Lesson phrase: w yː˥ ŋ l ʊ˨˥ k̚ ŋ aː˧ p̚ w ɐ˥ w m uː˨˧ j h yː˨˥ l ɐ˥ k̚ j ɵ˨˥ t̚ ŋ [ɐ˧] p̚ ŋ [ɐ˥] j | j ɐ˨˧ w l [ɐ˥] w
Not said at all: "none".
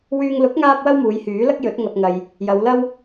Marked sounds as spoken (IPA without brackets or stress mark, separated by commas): ɐ˧, ɐ˧, ɐ˥